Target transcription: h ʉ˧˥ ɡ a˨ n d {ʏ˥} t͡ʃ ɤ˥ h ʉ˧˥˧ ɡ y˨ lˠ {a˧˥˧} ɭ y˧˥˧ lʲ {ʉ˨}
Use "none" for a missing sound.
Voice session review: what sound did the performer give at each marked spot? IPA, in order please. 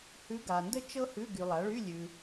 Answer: ə˥, a˩˥, ʉ˨

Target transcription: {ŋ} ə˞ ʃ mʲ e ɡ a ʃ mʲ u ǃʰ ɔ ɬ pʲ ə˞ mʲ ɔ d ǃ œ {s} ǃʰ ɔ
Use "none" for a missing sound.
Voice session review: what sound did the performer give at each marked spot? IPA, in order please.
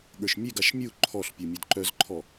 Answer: ɠ, z

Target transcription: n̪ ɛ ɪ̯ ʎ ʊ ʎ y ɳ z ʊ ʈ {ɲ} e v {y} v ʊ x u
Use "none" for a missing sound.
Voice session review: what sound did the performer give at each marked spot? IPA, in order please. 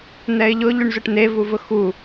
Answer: n̪, u

